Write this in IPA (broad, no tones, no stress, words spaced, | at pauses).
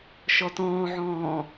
ʃɔtɔ̃ːʕɔ̃ː